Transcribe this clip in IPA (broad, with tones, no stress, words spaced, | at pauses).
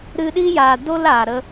ɾɨ˧ɗi˦ja˨ do˦l aː˨ɾə˦